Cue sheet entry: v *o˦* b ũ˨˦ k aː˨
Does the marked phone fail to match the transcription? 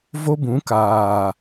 no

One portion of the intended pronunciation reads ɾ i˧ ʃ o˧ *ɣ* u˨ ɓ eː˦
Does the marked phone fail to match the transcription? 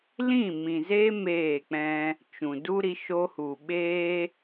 yes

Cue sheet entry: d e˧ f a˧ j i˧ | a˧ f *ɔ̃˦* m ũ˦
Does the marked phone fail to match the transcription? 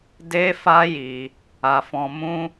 yes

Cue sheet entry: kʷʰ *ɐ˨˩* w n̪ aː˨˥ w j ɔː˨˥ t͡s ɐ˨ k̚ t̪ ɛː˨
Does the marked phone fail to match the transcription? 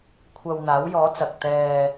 yes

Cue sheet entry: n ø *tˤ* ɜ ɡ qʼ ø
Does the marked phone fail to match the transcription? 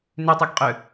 no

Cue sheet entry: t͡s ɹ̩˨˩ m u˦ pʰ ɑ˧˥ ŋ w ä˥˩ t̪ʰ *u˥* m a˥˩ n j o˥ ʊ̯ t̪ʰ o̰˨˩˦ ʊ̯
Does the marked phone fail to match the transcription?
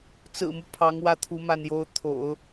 yes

